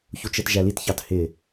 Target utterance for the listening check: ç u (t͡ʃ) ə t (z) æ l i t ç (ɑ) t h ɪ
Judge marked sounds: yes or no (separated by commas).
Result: yes, no, yes